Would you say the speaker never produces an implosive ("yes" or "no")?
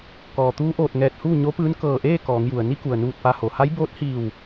yes